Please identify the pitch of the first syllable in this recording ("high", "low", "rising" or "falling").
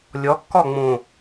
rising